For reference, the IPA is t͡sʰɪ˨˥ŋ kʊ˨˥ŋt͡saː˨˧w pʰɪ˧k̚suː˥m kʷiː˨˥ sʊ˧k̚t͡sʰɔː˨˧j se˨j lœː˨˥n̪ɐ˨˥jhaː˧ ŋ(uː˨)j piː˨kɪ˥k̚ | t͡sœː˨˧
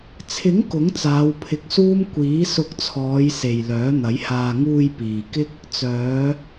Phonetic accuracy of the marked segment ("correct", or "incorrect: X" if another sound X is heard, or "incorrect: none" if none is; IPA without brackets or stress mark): incorrect: uː˧